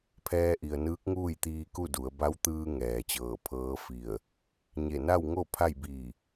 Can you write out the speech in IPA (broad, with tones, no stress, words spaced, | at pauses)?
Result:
pʰɛː˧ʔi˩ə̯nɯː˧˥k̚ ŋuː˥˨jt̪iː˧ku˥˨du˩˧ə̯ ba˧˥wt̪ɯː˧ ŋɛː˩t͡ɕɤː˧˩pʰɤː˧˥ fi˧˩ə̯ | ɲe˧˩na˥˨wŋo˥˨ pʰa˥˨jbiː˧˩